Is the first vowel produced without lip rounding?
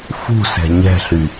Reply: no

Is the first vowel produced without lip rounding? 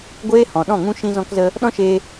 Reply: yes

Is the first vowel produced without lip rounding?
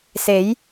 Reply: yes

